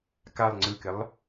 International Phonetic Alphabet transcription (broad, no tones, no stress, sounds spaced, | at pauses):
k a lˠ ŋ͡ǀ ɯ k ɪ lˠ